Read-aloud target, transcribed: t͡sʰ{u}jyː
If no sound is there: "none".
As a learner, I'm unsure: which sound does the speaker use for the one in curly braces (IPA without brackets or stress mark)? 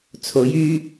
o